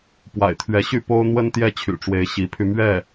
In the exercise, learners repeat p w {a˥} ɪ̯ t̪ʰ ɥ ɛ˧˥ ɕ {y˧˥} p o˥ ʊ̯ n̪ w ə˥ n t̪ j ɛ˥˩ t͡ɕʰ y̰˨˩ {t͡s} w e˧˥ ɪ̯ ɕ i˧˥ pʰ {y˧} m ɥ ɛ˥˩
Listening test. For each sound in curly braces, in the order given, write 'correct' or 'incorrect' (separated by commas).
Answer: incorrect, incorrect, incorrect, correct